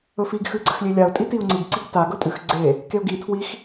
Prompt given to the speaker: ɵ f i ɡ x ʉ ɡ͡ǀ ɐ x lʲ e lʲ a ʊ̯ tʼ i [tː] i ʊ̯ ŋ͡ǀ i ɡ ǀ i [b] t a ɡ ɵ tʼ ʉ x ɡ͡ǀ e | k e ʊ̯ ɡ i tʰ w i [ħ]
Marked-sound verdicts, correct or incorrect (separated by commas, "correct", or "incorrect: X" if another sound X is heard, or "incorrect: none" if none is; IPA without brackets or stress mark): incorrect: t, incorrect: ɡ, incorrect: x